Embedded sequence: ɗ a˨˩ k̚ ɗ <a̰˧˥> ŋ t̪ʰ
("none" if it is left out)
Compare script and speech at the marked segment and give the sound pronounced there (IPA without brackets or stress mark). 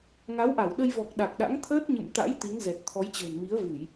a̰˧˥